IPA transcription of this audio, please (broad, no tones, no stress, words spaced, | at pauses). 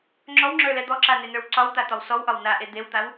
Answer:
ŋ͡ǁɔwŋ͡ǁə˞lɛ d̪ɔǁanenə˞w ǀɒwt̪at̪ɒw sɔwʔɒw naʔe d̪ewt̪aw